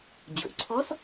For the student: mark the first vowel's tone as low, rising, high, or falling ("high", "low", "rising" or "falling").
low